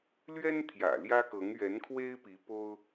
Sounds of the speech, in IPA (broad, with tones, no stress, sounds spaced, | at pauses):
l ɥ ɛ˥ n t̪ʰ j ä̰˨˩ l j ä˥ k ɤ˧˥ ŋ ɥ ɛ˧˥ n kʰ w e˥ ɪ̯ p i˧˥ p o˥ ʊ̯